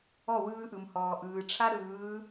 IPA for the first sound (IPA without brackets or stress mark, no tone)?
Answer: ɔ